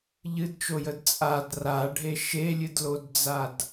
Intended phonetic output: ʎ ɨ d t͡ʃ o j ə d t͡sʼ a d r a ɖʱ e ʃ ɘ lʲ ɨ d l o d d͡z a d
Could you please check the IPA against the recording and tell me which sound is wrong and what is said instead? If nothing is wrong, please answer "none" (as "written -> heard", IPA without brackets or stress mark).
ɘ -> e